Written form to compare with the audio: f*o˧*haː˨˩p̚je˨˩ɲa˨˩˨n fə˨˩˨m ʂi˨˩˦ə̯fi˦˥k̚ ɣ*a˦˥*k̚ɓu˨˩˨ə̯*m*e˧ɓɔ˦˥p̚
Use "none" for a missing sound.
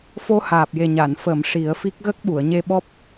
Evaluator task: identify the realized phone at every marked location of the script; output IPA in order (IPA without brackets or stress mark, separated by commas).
o˧, ə˦˥, ɲ